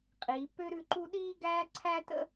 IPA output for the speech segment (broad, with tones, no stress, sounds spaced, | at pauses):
qʼ i˩˧ p ø˥ ɾ ʉ˥˧ ǃ u˥ ɗ iː˥ ɡ æː˥ ǀʰ æ˥ t ə̰˥